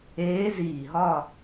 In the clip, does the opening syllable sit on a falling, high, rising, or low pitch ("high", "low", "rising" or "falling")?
rising